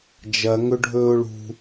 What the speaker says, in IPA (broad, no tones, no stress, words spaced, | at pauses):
d͡ʒɐ ŋɵɖʱɵːʊ̯ɭṳ